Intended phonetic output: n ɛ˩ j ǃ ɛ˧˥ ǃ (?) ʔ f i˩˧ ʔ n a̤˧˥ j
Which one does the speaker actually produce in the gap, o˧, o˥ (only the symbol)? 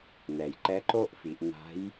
o˥